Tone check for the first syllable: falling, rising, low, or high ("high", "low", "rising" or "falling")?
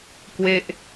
falling